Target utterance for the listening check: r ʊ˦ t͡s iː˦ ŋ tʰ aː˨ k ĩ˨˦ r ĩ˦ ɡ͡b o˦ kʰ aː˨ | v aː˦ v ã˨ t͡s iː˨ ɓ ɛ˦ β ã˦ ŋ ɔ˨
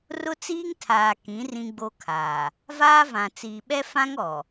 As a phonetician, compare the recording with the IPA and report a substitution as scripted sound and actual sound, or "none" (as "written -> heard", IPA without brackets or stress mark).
β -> f